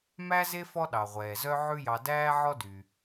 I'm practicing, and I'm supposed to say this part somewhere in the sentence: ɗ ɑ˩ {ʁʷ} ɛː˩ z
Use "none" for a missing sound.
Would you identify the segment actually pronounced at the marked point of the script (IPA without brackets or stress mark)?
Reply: ʁʷ